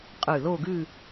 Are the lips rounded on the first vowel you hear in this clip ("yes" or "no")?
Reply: yes